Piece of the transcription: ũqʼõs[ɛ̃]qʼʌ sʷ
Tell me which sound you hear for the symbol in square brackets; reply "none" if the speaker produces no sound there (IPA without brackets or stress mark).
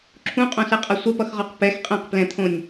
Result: ɛ